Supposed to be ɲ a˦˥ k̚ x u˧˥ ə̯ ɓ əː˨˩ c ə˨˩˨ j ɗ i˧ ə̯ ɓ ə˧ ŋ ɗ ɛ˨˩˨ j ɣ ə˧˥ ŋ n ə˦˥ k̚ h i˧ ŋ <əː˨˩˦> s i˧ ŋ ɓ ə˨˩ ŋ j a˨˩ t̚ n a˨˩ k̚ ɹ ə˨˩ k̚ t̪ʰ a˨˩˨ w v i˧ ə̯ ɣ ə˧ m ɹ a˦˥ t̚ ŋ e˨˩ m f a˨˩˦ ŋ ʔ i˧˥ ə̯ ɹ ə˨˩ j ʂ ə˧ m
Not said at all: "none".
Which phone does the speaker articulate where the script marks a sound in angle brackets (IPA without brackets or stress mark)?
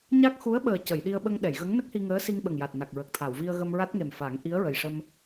əː˧˥